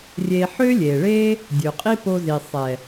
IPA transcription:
rʲ eː˧ ħ øː˦ lʲ eː˨ ɭ eː˦ | dʲ ø˨ qʼ i˦ p o˧ z i˨ sˤ ɛ˨

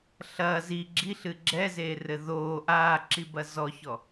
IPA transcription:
ɬ ɐː z i ɡ͡ǁ i ɬ ɨ ɡ͡ǁ ɛ z eː r ɘ ð oː ʔ aː ǁ i b ɐ z ɔ ç ɔ

